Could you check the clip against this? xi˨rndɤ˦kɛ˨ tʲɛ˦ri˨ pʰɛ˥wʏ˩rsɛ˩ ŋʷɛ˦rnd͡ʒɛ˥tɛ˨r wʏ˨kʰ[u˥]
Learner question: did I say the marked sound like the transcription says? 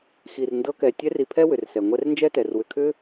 no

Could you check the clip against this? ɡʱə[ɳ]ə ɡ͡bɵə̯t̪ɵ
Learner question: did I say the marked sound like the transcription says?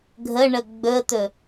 yes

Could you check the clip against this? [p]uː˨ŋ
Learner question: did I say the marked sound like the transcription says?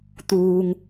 no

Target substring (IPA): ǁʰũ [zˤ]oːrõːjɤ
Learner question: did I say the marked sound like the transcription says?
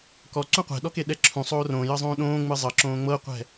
no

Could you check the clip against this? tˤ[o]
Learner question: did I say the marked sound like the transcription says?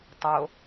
yes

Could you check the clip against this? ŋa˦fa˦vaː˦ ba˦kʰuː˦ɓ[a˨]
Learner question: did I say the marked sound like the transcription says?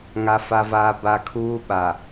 yes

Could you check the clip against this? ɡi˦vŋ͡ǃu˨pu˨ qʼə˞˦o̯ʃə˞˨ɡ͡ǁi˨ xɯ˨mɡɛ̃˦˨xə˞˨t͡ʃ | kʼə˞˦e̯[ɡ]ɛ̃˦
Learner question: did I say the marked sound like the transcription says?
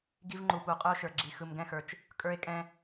no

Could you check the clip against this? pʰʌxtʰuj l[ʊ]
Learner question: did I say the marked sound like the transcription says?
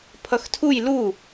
no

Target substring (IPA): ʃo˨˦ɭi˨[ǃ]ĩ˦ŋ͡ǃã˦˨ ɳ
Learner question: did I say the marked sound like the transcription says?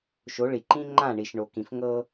yes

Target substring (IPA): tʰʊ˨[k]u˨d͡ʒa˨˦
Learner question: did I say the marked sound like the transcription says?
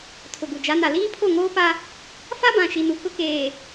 no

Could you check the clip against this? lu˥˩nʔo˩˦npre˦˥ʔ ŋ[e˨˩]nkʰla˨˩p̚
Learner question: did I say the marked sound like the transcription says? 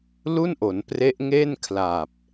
no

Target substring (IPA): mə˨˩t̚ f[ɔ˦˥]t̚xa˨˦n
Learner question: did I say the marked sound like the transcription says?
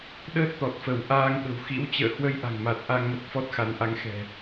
yes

